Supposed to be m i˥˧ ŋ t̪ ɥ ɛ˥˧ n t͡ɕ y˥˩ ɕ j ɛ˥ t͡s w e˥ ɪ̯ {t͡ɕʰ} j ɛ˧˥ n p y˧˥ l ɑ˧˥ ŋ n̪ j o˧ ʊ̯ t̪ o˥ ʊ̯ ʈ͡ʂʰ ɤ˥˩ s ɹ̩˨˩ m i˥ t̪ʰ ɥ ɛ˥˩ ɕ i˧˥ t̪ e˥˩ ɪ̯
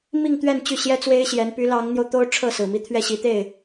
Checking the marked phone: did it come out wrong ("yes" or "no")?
yes